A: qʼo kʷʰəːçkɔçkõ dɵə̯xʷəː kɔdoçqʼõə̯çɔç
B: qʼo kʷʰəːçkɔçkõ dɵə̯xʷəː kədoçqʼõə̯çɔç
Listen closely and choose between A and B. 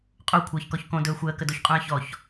B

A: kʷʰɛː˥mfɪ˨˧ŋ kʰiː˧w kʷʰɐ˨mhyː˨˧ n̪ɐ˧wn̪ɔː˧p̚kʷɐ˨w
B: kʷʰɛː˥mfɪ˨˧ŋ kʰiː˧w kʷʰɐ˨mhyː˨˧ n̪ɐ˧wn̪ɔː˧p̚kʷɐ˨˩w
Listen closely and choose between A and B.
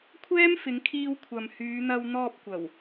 B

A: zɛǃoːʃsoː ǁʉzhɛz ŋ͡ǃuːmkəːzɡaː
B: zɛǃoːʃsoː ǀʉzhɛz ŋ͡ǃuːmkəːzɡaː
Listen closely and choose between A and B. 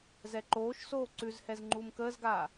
B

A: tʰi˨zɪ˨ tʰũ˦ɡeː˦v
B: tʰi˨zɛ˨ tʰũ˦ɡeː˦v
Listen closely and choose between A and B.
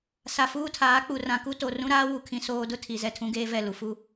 B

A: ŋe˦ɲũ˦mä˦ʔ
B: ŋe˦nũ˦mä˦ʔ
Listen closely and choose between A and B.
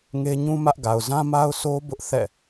A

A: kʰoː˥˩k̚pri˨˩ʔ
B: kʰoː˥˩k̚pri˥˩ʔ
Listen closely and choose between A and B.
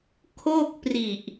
A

